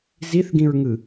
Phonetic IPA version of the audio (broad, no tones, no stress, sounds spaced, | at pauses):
z i θ ɡ ĩ ɹ ŋ ɯ